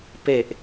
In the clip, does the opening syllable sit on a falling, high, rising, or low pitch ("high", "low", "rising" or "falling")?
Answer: low